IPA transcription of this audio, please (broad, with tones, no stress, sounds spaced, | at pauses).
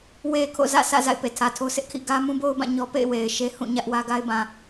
w e˨ kʰ o̰˦˨ z ä̰˦˨ sʰ ä̰˦˨ z a̰˦˨ ɪ̯ p e˨ tʰ ä˨ tʰ o˦ sʰ ɪ˦ ʔ kʰ ḭ˦˨ ɡ ä˦ m ũ˦ b o˦ ʊ̯ b ã˦˨ ɲ ɔ˦ p ḛ˦˨ ɪ̯ w e˨ ɪ̯ ʃ e˦ h ũ˦˨ ɲ ä˦ ʔ w ä˦ ɡ a˦ ɪ̯ b ã˨